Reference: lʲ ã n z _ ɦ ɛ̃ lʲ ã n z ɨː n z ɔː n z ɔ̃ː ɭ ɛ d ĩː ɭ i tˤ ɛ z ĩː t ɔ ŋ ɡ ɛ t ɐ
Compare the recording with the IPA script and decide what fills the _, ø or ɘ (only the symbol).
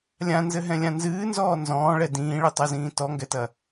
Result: ɘ